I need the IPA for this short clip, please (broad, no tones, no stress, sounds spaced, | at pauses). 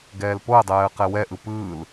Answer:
ɡ ɛː l p o ə̯ dˤ ɛː ə̯ q ɛ w ɛ ʔ ɯ p ɯː l